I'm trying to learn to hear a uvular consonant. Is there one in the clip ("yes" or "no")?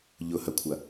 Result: no